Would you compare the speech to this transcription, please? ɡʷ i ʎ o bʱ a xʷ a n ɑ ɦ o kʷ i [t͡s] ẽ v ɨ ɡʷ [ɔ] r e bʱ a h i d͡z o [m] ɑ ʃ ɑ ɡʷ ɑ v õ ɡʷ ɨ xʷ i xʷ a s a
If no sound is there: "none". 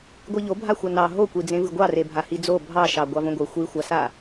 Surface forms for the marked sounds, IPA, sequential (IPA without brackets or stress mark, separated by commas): d͡z, ɑ, bʱ